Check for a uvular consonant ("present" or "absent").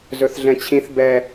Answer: absent